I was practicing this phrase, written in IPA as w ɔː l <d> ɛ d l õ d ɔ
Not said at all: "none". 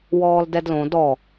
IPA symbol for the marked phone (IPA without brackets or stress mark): d